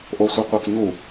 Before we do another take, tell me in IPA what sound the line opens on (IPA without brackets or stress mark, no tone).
ʔ